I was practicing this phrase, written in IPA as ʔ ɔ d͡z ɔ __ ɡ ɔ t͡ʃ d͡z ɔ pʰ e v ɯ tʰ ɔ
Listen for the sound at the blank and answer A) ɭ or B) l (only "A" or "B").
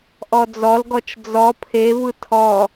B